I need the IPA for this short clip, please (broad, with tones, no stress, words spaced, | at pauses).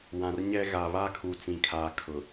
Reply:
wã˨rɲɛ˦ɣa˨ βaː˦kʰu˨t͡sĩ˨kʰaː˨ kʰʊ˨